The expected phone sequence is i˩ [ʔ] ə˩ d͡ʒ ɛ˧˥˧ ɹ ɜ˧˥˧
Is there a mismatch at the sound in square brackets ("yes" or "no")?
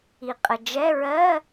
yes